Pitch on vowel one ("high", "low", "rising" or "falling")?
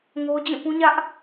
high